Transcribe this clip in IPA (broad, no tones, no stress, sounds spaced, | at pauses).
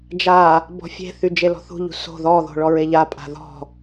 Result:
d͡ʒ a | b ɔ̤ fʲ e̤ θ y d͡ʒ e l ɔ̤ θ ṳ ʎ ṳ s o̤ ð ɔ ð o̤ ɭ ɔ ɹ e ʎ a pʼ a̤ ð ɔ̤